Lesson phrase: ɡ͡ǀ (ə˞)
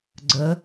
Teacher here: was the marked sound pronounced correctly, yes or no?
no